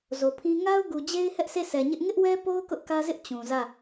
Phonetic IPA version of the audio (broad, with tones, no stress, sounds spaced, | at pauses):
z o˨ pʰ ĩ˦ ŋ a˦ ʊ̯ ɡ u˨ d͡ʑ e˦ ɪ̯ h ɛ˦ ʔ sʰ e˦˨ s ɛ˨ ɲ ɪ˦ ʔ ŋ ɪ˦ ʔ w ɛ˦ p o˦ ʊ̯ k ʊ˦ ʔ k ä˦ z ɪ˦ ʔ t͡ɕ ũ˨ z ä˦˨